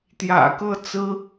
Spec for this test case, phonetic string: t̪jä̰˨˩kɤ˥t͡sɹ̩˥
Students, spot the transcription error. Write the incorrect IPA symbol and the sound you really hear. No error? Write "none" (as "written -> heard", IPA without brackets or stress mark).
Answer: none